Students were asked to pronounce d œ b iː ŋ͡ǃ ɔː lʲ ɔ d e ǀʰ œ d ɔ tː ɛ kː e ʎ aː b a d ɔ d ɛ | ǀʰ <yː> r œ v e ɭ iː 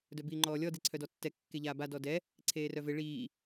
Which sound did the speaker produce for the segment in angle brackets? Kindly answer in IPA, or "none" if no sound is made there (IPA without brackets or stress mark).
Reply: eː